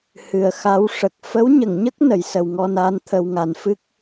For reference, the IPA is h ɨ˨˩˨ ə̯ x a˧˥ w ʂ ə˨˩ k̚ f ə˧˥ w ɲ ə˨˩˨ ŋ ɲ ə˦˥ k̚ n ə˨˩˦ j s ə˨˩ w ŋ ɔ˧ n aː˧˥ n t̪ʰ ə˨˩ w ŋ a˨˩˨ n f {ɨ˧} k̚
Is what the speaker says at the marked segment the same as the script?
no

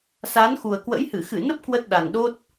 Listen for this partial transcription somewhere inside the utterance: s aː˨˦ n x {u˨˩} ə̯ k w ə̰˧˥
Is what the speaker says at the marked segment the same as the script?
yes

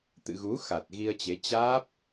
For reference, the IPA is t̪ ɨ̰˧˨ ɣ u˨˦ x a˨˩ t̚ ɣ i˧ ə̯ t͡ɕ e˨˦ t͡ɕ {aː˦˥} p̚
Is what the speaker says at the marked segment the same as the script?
yes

